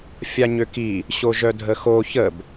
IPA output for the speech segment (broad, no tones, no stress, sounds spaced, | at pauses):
fʲ a ɲ ø k i | ɕ o ʒ œ dʱ ə x o ç ə b